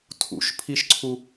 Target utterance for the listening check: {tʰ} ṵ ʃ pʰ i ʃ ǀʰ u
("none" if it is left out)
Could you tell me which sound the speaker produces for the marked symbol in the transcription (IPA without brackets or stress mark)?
tʰ